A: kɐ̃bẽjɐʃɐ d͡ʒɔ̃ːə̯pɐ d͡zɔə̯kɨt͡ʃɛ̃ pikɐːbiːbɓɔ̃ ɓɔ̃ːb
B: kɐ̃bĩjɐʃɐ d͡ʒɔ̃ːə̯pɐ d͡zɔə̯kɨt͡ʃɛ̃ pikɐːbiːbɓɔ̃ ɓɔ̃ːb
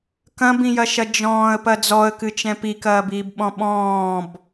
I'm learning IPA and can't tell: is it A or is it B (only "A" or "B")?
B